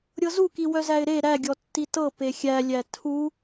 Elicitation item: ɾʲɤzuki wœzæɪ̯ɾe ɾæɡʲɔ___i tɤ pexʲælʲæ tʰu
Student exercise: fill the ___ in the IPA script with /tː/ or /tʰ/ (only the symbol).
tː